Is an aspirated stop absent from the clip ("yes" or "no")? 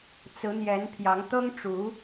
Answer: no